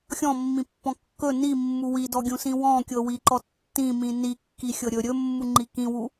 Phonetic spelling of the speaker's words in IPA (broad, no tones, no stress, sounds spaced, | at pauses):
xʲ ɔ̃ mː ĩ pː ɔ̃ kː ɵ n i mː u w i d ɔ ɡʲ ũ s ĩ w ɔ̃ kʲ ɤ w i ǃ ɔ tː ĩ m ĩ n i kː i xʲ ɤ ɾʲ ɵ ɾʲ ɵ mː u ŋ͡ǃ i k ĩ w u